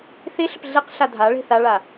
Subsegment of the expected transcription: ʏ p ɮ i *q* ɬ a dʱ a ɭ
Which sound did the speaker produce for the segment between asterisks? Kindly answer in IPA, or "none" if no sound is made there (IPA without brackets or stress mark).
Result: q